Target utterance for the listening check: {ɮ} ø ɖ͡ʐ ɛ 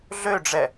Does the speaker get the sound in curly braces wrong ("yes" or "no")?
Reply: no